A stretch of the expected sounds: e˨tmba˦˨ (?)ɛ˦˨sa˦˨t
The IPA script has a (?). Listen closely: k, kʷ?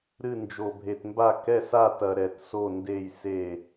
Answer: k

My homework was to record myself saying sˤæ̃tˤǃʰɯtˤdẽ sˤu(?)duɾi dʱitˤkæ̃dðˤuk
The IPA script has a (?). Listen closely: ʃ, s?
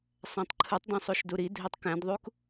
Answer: ʃ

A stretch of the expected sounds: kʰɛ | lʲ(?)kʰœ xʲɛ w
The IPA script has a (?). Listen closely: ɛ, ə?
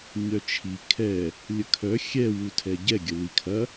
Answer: ə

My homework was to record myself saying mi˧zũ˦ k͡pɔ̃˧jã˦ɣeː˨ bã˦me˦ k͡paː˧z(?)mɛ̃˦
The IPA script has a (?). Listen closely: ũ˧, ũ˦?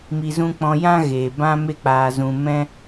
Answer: ũ˧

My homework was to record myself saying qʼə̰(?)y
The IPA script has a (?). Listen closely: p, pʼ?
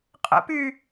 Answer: p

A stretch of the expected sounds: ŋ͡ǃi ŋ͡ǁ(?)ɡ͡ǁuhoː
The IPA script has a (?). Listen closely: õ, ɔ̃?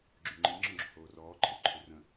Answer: ɔ̃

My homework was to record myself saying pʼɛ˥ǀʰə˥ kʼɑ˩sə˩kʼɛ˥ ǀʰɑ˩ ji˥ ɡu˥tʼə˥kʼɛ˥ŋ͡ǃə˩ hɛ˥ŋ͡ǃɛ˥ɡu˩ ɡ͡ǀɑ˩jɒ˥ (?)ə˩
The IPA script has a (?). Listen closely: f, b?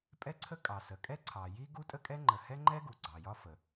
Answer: f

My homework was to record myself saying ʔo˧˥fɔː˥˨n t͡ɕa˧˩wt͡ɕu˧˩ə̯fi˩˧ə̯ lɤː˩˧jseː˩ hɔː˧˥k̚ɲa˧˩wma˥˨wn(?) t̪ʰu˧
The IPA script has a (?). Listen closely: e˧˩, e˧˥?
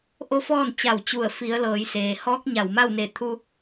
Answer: e˧˩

